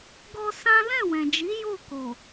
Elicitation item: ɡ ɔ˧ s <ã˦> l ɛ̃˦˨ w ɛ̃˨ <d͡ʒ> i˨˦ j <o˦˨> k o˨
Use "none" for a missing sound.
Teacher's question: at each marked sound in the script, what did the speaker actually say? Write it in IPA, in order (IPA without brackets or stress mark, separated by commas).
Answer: ã˦, d͡ʒ, o˦˨